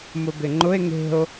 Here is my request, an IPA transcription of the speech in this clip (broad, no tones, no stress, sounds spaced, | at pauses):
m ʊ b ɪ ŋ͡ǃ ʊ e̯ ŋ e̤ o̯